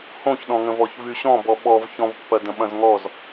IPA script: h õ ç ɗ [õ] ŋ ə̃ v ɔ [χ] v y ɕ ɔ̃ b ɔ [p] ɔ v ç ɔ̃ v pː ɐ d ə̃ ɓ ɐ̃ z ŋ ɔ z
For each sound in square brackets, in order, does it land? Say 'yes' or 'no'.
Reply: no, no, no

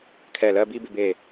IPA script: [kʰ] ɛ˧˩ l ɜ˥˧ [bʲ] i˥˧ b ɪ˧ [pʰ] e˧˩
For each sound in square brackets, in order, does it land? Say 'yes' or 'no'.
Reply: yes, no, no

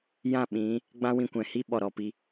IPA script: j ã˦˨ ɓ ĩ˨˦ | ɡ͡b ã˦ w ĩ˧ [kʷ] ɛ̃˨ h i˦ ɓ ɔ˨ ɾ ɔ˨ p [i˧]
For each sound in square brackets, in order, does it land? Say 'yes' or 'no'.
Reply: yes, yes

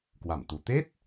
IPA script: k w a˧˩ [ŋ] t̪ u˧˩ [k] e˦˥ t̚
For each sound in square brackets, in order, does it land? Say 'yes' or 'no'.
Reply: no, no

